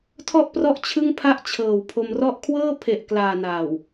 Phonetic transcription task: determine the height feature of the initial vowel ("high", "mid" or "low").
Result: mid